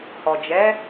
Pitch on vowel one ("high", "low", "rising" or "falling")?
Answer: low